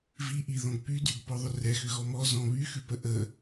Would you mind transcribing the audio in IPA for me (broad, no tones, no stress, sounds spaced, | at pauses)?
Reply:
v i ʔ i ð ɔ̃ ɡ p y d y ɡ p ɔ ðˤ ʏ r ɛ x ʏ ɣ ɔ m ɔ z ɔ̃ β y x ʉ p ə ʔ ə